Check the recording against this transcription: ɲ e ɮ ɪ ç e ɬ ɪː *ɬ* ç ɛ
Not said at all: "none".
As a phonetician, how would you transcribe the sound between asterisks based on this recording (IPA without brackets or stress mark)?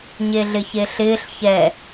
ɬ